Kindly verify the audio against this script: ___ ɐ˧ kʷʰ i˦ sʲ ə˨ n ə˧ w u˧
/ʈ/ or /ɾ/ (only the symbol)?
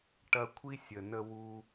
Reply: ʈ